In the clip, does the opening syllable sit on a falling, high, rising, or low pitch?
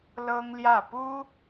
high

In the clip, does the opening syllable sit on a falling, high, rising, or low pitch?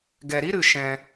low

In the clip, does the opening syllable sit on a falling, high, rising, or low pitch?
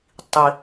low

